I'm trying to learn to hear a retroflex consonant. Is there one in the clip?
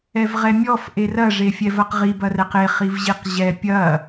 yes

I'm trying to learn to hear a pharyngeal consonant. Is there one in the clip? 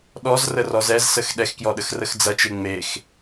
no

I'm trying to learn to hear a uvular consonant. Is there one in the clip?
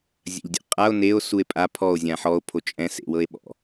yes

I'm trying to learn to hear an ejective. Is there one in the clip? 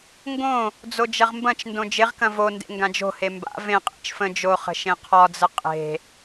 yes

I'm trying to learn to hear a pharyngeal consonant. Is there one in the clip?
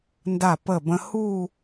no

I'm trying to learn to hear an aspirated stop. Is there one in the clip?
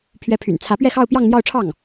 yes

